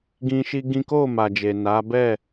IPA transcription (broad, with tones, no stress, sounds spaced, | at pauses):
ɡ ĩ˦ ʃ i˦ ɡ ĩ˦ k o˦˨ m a˨ d͡ʒ e˨ n a˨˦ b ɛ˦˨